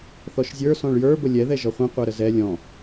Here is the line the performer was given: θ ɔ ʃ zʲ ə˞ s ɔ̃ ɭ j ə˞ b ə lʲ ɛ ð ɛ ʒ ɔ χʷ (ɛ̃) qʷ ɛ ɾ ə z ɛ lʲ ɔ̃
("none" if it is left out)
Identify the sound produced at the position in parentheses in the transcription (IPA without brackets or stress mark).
ɛ̃